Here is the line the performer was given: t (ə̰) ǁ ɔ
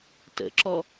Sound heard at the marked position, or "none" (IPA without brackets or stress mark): ə̰